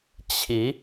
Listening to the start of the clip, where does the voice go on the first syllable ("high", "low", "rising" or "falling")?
rising